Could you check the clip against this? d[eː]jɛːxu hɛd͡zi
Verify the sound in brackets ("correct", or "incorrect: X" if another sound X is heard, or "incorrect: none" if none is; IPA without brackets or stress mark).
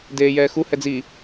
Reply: correct